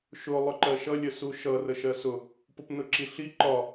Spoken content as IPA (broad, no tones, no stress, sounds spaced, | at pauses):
ʃ ʊ lˠ ʊ ǃ ɜ ʃ ʌ lʲ ə s u ʃ ʌ r ə ʃ ɜ s ʊ | p ʊ p n ʊ ǁ i ɬ i ǃ ɒ